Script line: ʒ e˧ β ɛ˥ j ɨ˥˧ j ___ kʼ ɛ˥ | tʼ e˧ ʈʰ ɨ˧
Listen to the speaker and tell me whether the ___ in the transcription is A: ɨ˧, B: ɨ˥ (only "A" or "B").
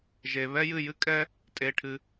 B